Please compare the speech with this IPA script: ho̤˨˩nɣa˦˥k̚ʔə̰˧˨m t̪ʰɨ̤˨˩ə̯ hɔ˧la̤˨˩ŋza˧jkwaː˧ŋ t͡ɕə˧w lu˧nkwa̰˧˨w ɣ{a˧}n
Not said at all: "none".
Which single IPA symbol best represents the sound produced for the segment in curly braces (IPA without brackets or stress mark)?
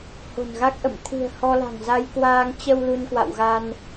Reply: a˧